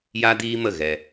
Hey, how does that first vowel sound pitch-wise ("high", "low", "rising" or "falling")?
high